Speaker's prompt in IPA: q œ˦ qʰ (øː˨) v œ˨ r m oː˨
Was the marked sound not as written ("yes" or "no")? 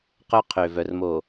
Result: no